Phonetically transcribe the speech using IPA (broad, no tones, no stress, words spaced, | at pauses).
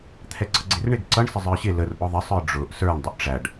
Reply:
t̪ʰɛɡ͡ǀʌɡ͡ǀɪrɳɪɡ ǀʌɳ sɪzˤə˞ɕɪ lər ʔʊðˤɪ sˤə˞ɖ͡ʐʊʔ sə˞ɳ dˤʊʔʈ͡ʂæɖ